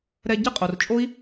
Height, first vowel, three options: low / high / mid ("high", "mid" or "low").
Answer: mid